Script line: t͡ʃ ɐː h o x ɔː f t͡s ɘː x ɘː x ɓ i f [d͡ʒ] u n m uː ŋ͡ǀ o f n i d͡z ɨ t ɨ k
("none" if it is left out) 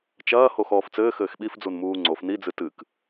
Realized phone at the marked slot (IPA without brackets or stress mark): d͡z